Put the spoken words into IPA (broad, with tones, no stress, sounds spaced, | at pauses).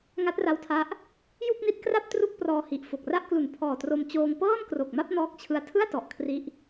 ŋ a˦˥ t̚ r a˧ w tʰ a˦˥ ʔ | j u˥˩ k̚ n i˦˥ t̚ k r a˥˩ p̚ t r u˥˩ k̚ p r ɔː˧ h i˨˩ ʔ f o˨˩ k̚ r a˥˩ ʔ k l u˩˦ n pʰ ɔː˨˩ t r o˧ m t͡ɕ oː˧ ŋ p ɤː˥˩ n k r o˨˩ k̚ m a˥˩ p̚ n ɔː˦˥ k̚ t͡ɕʰ ɯ˧ a̯ tʰ ɯ˥˩ a̯ t ɔ˨˩ ʔ kʰ r i˦˥ ʔ